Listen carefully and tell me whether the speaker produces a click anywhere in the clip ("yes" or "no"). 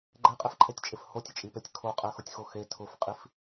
yes